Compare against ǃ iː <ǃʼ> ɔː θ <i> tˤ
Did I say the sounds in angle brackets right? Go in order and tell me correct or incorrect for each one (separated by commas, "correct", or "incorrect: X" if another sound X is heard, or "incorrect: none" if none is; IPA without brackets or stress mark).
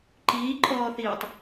correct, incorrect: iː